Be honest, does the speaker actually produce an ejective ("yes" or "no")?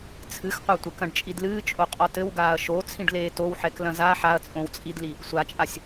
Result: yes